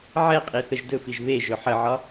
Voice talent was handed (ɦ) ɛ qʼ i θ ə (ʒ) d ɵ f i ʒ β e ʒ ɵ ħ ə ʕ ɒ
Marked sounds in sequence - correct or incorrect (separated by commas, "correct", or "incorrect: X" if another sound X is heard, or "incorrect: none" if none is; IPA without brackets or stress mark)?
incorrect: ʕ, correct